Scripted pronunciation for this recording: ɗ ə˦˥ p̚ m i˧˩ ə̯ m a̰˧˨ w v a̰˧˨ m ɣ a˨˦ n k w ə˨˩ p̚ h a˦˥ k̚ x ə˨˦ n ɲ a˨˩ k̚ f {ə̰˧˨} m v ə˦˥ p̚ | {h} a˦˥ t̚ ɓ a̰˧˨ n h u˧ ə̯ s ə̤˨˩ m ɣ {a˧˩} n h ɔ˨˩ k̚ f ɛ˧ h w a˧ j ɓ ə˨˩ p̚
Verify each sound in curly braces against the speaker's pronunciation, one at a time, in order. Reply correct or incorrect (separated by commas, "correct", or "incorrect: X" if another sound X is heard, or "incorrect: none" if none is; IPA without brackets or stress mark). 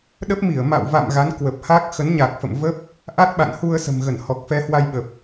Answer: correct, incorrect: ʔ, incorrect: ə˧˩